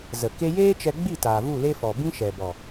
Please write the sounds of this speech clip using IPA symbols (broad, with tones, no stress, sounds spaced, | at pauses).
z ə˨ k e˧ j eː˦ t͡ʃ ɛ˧ ɡ͡b i˦˨ t aː˨ v u˦˨ l e˦ f ɔ˨ b ĩ˦ ʃ ɛ˨ b ɔ˨